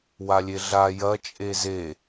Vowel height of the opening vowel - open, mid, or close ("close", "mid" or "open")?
open